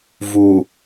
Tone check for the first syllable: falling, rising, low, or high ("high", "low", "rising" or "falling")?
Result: low